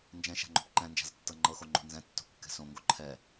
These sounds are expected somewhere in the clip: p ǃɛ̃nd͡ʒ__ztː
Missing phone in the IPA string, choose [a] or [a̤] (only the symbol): a̤